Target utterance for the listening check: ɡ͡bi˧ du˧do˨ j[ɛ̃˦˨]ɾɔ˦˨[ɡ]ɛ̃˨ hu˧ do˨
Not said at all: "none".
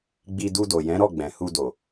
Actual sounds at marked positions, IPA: ɛ̃˨˦, ɡ͡b

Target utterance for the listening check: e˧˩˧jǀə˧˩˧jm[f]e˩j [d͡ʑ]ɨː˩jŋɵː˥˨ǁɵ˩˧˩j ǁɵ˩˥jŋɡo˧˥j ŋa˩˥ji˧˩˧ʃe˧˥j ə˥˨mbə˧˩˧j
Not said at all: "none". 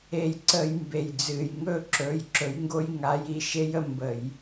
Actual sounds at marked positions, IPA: b, d͡z

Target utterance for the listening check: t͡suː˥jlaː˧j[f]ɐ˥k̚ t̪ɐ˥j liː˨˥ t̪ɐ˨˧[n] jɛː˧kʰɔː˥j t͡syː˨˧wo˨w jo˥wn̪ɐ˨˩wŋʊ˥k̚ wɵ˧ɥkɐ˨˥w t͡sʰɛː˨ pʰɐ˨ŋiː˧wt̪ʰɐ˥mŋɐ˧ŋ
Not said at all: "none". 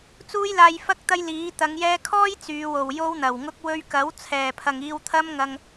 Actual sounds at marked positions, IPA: f, ŋ

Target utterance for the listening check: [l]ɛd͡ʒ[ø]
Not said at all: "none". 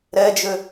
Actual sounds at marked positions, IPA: ɾ, ø

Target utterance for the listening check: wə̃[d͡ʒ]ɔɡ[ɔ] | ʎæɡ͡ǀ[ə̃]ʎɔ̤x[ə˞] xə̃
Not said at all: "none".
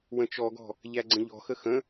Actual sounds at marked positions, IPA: t͡ʃ, ɔ̤, ə̃, ə

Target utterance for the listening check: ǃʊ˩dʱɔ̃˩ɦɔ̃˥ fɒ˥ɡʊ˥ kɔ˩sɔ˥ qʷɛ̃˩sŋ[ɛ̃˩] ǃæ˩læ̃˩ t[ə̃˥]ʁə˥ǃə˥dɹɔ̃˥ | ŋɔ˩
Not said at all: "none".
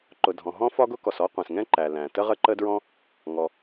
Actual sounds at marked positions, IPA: ɛ̃˥, ə˥

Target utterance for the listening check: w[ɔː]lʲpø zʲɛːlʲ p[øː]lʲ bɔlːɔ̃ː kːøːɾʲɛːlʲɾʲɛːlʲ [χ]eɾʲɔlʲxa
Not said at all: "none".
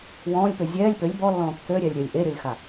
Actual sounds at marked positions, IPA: ɔ̃ː, ø, ʔ

